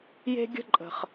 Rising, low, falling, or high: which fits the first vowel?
high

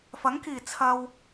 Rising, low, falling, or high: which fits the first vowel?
rising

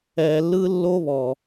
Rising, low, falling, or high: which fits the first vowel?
low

